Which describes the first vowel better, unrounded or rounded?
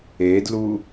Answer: unrounded